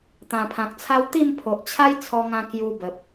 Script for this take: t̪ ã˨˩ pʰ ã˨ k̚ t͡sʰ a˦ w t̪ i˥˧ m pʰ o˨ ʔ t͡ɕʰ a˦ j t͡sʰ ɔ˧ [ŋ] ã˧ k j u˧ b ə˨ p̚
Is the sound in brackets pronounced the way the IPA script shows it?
yes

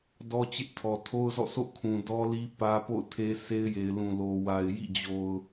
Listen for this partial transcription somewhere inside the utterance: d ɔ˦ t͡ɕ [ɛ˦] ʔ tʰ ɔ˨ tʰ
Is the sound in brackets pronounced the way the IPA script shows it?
no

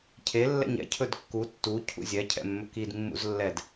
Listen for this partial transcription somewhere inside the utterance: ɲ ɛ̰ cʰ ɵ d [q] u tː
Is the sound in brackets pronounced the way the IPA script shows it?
no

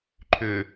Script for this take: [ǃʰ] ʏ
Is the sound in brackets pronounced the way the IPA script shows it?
yes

